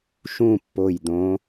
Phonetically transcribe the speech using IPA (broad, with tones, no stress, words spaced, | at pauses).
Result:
ʃũ˥˨pːo˧˩jd̪õ˨˦